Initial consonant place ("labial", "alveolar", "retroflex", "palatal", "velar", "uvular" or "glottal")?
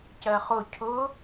palatal